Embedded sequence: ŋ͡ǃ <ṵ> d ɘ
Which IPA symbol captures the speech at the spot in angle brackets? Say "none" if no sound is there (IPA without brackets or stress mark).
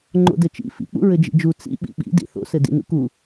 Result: o̰